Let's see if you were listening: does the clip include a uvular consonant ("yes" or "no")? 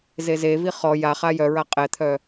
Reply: yes